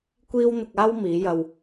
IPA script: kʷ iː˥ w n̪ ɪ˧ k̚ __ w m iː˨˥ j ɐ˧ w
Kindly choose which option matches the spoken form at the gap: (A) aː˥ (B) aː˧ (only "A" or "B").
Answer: A